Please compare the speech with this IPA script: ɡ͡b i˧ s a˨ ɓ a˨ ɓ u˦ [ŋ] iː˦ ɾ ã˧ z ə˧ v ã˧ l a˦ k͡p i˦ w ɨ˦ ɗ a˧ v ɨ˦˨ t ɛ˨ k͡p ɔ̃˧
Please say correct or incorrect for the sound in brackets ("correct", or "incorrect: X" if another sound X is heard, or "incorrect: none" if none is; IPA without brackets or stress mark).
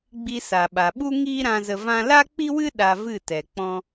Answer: correct